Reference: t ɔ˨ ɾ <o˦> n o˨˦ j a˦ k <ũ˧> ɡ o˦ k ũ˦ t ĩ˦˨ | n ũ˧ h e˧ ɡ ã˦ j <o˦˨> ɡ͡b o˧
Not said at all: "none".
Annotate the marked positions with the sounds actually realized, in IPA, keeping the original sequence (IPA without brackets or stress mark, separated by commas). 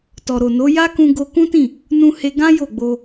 o˨, ũ˧, o˦˨